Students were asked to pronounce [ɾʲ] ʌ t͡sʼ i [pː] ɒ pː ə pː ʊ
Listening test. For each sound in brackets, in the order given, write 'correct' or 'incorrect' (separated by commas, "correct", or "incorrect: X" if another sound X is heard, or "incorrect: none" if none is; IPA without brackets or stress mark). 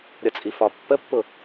correct, incorrect: f